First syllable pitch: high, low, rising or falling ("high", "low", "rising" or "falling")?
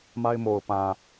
high